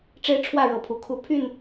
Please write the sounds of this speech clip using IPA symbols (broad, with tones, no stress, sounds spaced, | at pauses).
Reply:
ʈ͡ʂ e˦ ɪ̯ ʈ͡ʂʰ w ä˥˨ ɻ ɤ˨˦ pʰ u˨˩ kʰ u˨˦ pʰ y˥˨ n